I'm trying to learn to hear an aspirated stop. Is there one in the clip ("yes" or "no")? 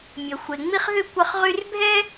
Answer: no